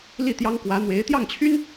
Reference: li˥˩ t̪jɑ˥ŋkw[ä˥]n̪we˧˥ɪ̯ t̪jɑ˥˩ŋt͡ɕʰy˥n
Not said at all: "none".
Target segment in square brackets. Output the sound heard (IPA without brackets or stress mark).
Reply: ä˧˥